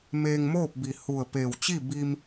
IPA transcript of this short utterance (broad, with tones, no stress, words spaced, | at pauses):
meː˧ŋmoː˥˨p̚ bi˧˩ hu˧˩ə̯peː˧˩wt͡ɕi˥˨ bi˧m